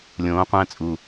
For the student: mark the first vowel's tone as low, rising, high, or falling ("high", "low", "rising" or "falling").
rising